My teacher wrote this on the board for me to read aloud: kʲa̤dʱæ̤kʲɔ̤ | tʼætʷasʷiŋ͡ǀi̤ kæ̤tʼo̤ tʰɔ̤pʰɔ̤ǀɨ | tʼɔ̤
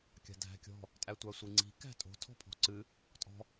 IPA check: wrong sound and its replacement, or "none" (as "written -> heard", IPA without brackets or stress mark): none